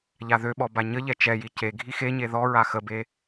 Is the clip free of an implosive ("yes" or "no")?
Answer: no